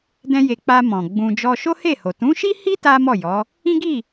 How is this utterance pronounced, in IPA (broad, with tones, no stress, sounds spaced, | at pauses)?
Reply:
d ɛ̃˧ j e˨ k͡p a˧ m ɔ̃˨ ɡ͡b ũ˧ d͡ʒ ɔ˧ ʃ o˦ h e˦˨ h o˨ t ũ˨˦ ʃ i˦ h i˦ t a˦ m ɔ˦˨ j ɔ˨˦ | ĩ˦ ɡ i˦˨